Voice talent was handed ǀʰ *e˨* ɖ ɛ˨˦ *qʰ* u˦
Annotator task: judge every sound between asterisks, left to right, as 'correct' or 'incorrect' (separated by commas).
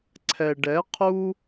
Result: incorrect, correct